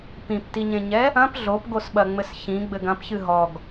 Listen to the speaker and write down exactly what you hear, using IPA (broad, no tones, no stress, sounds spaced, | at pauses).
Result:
p ĩ p t i ɲ ẽ ɲ ɛ | ɐ̃ p ɮ o p ɡ o s ɓ ɐ ŋ͡m ɘ s ç ĩ ɡ͡b ɘ ɡ ɐ̃ p ç ɨ ɦ ɔ ɡ